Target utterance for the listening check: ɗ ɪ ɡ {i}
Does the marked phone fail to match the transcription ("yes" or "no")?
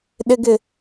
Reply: yes